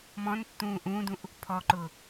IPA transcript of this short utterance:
mɔ̃ntːũː ʔũːdũʔ | pʰɔǃʊː

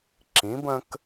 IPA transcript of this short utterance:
ǁĩ˩˥b ə̃˦k

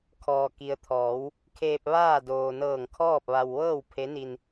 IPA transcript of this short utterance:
kʰɔː˩ki˩ə̯ t̪ʰɔː˩˧w | kʰeː˧p̚ ʋaː˥˨ doː˩nɤː˧˩ŋ kʰɔː˥˨p̚ʋa˧w ʋɤː˥˨w pʰe˧˥ni˧n

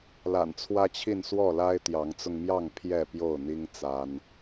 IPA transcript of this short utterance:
la̰˨˩nt͡sʰwä˦t͡ɕʰi˥˨n swɔ˥˨la˦ɪ̯t̪jɑ˨˦ŋt͡sʊ˧ŋ mjɑ˥˨ŋ pʰjɛ˥˨pjo˥˨ʊ̯n̪i˦ŋ t͡sa˦n

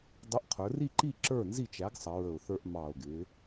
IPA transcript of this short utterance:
dˤʊ˨˥ʔ qʰə˞˩˧ri˥˨ǃi˥˨ ǁə˞˥˨nzi˥˨t͡ʃæ˨˥ɡ sˤʌ˩˧ɹə˨˩ʊ̯θə˞˧ʔ mɑ˨˩ʊ̯ɡɪ˩˧

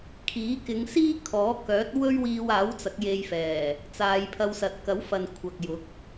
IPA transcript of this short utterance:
kʰiː˨˥kɪ˨˧ŋsiː˥ kʰɔː˨˥kœː˨˥t̚ wɵ˥ɥwiː˧waː˨˥w t͡sɐ˨˥k̚je˧jfɛː˨˩ | t͡saː˨˧jpʰɐ˧w sɐ˨t̚kɐ˨˥wfɐ˨n kʷʰɐ˨k̚jʊ˨˥k̚

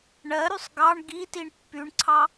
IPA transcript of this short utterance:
ɳɜɾysˤ ɡɑɳ ɡitiɳ pːyɳǀʰɑ

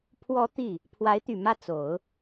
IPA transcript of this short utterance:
pʰwɔ˧˥ t̪i˥˩ | pʰwa˧˥ɪ̯t̪y˨˩ mä˥˩t͡so˨˩˦ʊ̯

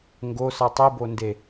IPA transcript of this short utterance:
ŋɡosʌ tˤibonde

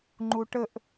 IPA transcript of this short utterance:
ŋ͡ǃuʈəʔ

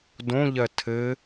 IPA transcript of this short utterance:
dõʎɜ tʰɘ

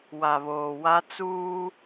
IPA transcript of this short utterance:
wa˨βoː˨wa˦ t͡suː˦

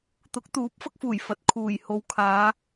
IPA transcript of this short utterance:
t̪ʊ˨˥k̚t̪uː˨˥p̚ fɐ˥k̚fuː˨˩j fɐ˨t̚ kʰuː˨˩j ho˨wkʰaː˨˧

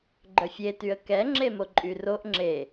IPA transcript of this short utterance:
ɡ͡ǃœfʲetyə̯ kɛŋ͡ǁemo ǃʼyroʔ ŋ͡ǁe

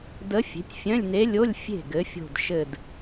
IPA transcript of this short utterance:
də˧˥ fʲe̤˩˥tʲfʲœ̃˧˥˧lʲne˧˥ lʲo˧˥˧lʲ fʲe̤˥˩ɡɘ˩˥fʲo̤˧˩d ʃɘ˧˩d

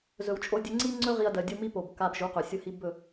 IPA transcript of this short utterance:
zɵ˨w t͡ʃʼo˧dʲɵ˧ ŋ͡ǀi˦ ŋ͡ǀɵ˦ ʁi˧ɐ̯dɜ˨ dʲu˧mi˦po˨b ka˧bʒu˨˦qɵ˨ sʲʊ˦hi˦ bɵ˦˨

